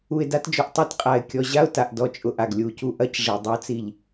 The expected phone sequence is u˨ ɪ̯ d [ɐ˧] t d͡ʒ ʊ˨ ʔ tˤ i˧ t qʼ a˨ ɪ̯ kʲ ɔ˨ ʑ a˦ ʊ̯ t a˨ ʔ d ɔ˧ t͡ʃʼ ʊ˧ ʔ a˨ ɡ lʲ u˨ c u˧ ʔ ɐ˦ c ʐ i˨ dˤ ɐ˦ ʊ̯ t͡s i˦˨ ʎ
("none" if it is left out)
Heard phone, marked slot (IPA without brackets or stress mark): a˧